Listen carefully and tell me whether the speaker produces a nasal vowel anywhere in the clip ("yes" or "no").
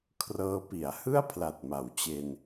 no